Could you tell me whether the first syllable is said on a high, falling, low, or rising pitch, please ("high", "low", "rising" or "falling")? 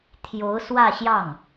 rising